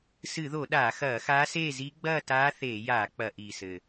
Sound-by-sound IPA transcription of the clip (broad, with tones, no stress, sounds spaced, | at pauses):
s ɨ˧˩˧ ð o˧˩˧ ɗ aː˧˩˧ x ɐː˧˩˧ x aː˧˥ s eː˥˨ z i˧˥ ɡ͡b ɐː˥˨ t aː˧˥ θ eː˧˩˧ j aː˧˩˧ k͡p ɐ˧˩˧ ʔ iː˨˩ s ɘ˨˩